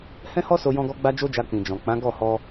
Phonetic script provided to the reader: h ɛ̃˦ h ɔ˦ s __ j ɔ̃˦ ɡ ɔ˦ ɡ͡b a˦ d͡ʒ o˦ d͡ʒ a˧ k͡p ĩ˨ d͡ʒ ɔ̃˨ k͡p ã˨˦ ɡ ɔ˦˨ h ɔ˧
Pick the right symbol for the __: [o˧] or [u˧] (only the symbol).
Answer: o˧